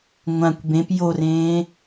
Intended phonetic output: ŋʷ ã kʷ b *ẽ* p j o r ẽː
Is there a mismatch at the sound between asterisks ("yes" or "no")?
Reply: no